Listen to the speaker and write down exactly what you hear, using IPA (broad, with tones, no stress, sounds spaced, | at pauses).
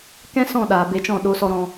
k ɛ̃˦ s ɔ̃˦˨ ɗ aː˨ b e˧ t͡ʃ ɔ̃˦˨ ɗ o˧ s ɔ˧ ɾ ɔ̃˧